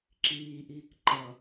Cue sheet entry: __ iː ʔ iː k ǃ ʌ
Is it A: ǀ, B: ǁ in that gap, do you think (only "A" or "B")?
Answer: B